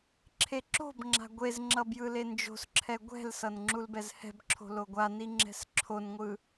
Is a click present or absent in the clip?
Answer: present